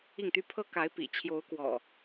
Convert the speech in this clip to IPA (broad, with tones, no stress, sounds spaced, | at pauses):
i˥˨ ŋ t̪ y˦ pʰ ɤ˦ k a˨˦ ɪ̯ p ḭ˨˩ t͡ɕʰ j o˨˦ ʊ̯ k w ɔ̰˨˩